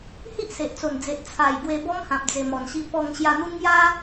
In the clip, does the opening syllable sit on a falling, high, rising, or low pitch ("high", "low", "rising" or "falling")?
high